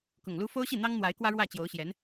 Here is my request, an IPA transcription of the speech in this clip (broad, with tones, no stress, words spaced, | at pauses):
kʊ˨˩ŋlu˥ fo˥ʊ̯ɕi˥˩n̪ɑ˥ŋ n̪wa˧˥ɪ̯kwä˥ɻwä˥˩ t͡ɕjo˧˥ʊ̯ɕjɛ˧˥n